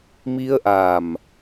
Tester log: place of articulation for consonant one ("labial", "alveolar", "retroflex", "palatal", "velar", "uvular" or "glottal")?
labial